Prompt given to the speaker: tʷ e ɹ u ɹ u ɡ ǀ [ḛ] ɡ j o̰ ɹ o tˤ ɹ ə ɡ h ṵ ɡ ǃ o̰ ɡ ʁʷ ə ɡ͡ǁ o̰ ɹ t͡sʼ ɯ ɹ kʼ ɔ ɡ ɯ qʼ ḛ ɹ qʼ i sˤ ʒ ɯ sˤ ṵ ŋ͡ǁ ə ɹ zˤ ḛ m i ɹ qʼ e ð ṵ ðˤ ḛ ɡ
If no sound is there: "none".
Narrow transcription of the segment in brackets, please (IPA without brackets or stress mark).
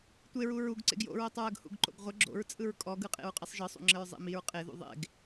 ḛ